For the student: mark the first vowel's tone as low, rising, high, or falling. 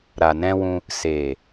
low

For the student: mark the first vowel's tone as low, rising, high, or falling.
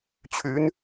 rising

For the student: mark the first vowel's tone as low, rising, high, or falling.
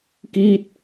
falling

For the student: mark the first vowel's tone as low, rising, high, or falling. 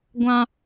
high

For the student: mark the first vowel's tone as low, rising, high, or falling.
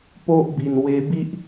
high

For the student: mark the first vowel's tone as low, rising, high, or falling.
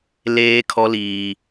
high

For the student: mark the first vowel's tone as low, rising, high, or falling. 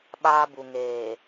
high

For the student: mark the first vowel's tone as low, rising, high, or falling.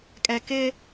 low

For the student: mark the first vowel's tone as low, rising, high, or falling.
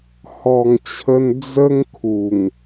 low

